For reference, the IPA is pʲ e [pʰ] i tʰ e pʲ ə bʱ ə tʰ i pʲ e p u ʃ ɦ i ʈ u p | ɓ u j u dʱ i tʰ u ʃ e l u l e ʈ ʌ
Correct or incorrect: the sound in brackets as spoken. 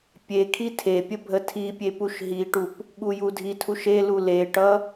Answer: incorrect: kʰ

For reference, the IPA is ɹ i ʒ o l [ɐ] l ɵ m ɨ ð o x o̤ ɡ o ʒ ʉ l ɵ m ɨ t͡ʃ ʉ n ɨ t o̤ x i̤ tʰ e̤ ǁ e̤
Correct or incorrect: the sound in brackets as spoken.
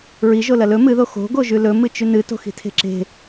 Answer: correct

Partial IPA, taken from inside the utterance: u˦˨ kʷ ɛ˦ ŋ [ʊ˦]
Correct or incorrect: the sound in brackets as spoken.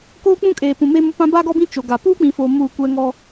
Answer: incorrect: ɔ˦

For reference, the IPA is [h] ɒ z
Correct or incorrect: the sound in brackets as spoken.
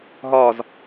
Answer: incorrect: ɦ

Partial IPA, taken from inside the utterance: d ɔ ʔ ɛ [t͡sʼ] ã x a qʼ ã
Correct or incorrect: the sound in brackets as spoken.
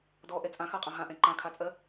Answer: correct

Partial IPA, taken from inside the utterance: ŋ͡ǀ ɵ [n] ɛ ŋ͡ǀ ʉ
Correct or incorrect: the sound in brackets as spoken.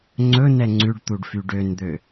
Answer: correct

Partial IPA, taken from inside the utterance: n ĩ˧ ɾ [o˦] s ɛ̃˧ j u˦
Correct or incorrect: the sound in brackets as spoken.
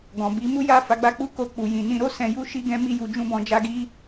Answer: correct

